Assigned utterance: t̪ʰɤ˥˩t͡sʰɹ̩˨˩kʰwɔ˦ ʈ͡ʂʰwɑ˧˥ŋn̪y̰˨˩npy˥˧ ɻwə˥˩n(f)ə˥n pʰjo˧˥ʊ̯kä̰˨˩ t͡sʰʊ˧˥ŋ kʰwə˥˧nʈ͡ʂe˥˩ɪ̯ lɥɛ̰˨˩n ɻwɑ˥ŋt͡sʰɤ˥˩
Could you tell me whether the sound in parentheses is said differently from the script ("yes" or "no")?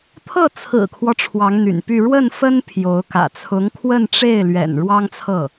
no